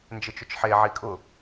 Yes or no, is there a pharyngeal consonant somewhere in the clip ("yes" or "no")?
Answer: yes